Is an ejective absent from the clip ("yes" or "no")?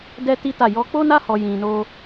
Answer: yes